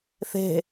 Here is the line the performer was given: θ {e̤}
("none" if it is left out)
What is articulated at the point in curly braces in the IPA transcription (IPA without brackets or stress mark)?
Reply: e̤